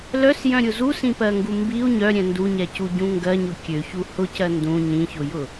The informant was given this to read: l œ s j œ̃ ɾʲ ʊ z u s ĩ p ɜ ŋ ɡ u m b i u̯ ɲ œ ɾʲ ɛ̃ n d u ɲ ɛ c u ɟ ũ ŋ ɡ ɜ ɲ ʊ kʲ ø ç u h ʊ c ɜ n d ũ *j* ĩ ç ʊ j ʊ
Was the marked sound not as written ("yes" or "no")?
yes